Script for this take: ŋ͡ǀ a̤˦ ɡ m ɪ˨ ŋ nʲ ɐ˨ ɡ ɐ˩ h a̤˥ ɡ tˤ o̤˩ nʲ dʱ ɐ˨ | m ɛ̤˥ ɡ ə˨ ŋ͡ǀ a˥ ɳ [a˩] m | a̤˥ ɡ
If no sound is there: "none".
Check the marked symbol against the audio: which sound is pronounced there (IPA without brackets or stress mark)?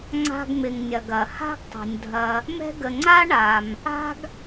a˩